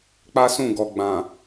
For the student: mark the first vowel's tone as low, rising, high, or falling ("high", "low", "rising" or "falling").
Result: high